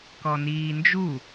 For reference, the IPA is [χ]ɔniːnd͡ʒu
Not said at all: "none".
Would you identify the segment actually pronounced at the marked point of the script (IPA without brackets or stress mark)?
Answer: k